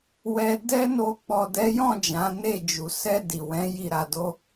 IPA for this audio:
w ɛ˧ d ɛ˦ n o˧ k͡p ɔ˨ d ɛ˨˦ j ɔ̃˦˨ d͡ʒ ã˨˦ n e˦˨ d͡ʒ u˨ s ɛ˧ d i˨ w ɛ̃˨˦ j i˦˨ ɾ a˧ d o˦

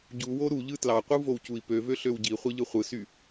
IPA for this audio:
ɟ u w o ɾ u ʎ ɯ t l ɑ qʷ ɯ v o w c u i̯ p ø v ø ɬ ø w ɟ i χʷ e ʎ ɯ χʷ ɯ s y

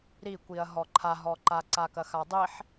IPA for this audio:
ɾ i kʷ i ɐ̯ ɦ ɔ ǃʰ a ɦ ɔ ǃ a ǀ a k ɐ x a dˤ i ħ

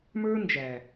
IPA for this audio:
m ə˞˦ n d͡ʒ æ˨

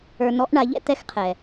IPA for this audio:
ə˞˧ n ɔ˧˥ ʔ ɳ a˩˧ ʎ ɛ̰˥ t̪ ɛ˧˥ x qʰ ɛ˩

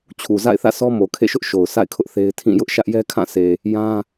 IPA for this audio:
t͡ɕʰ u˨ z a̰˦˨ ɪ̯ θ ä̰˦˨ sʰ ɔ˦ m o˨ kʰ ḛ˦˨ ʃ ʊ˦ ʔ ʃ o˨ ʊ̯ s a̰˦˨ ɪ̯ kʰ ʊ˦ ʔ θ e˦ ɪ̯ tʰ ĩ˦˨ j ʊ˦ ʔ ʃ ä˦ ʔ j ɛ˦ kʰ ã˦˨ sʰ e˨ | j ã˦

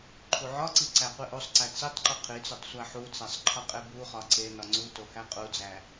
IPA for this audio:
ǃʰ u ʕ ɒ ǀ i ǀ æ qʷ i ʔ o sˤ ǀ æ t͡s i tˤ ǃ u qʰ i t͡s o tˤ sʷ æ ħ u t͡s æ sˤ ǃʰ ɒ qʼ e b u χ ɒ ǀ e n ɒ ŋ͡ǀ u t o h æ qʼ u d͡z æ

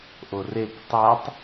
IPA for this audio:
ʔ o r e k tˤ a tˤ

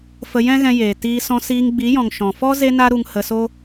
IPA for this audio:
f ə˧ j ɛ̃˦ ɣ ɛ̃˧ j eː˨ t iː˧ s ɔ̃˧ s iː˧ ŋ ɡ͡b i˨˦ j ɔ̃˨ ŋ ʃ ɔ̃˨ f ɔ˦ z e˦ n a˦ ɾ u˧ ŋ h ə˧ s o˦

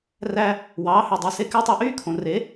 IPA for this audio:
r æ˦ | w ɑː˨˦ h ø˨ dˤ i˨ s e˧ k æ˦ tˤ æ˧ ʔ yː˦ kʰ õ˨ r e˨˦

